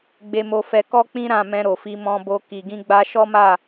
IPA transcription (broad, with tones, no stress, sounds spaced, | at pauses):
ɡ͡b e˧ m o˧ f ɛ˧ k ɔ˦ k͡p ĩ˦ ɾ ã˦˨ m ɛ̃˧ ɾ o˨ f i˧ m ɔ̃˧ b o˧ k i˨ ɡ ĩ˧ ɡ͡b a˧ ʃ ɔ˦ m a˦˨